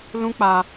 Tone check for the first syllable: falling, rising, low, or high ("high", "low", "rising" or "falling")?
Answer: high